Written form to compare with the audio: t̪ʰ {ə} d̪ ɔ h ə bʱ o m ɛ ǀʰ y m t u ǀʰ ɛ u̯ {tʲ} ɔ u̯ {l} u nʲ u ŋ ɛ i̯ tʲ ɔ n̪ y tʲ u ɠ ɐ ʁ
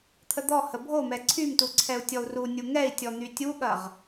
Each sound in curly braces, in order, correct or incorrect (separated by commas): correct, correct, incorrect